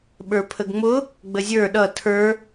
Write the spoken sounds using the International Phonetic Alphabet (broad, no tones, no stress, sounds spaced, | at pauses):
ɓ ə˞ pʰ ə ɡ ŋ͡m ʊ | ɡ͡b ə zʲ ə˞ ɗ ʌ tʰ ə˞